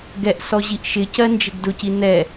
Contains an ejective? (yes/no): no